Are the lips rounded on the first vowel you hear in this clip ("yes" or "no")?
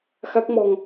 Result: no